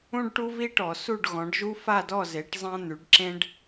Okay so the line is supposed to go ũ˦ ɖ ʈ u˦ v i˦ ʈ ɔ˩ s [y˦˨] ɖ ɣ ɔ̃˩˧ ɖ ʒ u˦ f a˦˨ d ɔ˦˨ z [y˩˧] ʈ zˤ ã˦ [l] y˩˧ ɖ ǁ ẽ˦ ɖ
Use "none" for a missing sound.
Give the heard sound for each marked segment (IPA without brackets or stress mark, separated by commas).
u˦˨, e˩˧, n̪